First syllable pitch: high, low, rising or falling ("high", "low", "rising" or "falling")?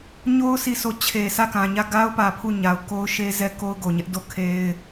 high